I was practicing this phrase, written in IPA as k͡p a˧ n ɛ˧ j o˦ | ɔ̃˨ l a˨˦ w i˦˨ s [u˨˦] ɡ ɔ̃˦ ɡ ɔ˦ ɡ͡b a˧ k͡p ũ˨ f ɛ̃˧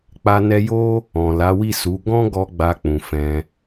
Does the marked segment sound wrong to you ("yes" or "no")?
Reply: no